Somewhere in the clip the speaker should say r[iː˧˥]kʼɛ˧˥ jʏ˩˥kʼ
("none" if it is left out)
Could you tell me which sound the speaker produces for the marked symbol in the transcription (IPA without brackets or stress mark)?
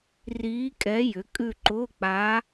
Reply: iː˧˥